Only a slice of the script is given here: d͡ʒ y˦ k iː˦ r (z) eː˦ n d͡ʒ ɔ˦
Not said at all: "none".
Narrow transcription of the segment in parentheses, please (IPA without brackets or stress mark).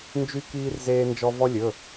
z